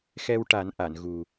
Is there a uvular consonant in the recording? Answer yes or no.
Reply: no